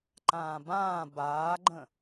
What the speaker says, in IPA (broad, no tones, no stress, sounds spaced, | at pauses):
ǃ ãː b ãː b aː ɡ͡ǃ ə̃